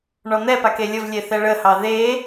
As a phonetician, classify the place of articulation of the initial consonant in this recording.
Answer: retroflex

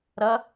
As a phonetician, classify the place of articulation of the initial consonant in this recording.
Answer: alveolar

